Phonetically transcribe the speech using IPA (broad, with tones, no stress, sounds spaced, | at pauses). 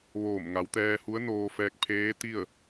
ʋ oː˧˩ m ŋ a˩˧ w t̪ ɛː˧ h u˧˥ ə̯ n oː˧ f ɛː˧ k̚ pʰ eː˧˥ t̪ i˥˨ ə̯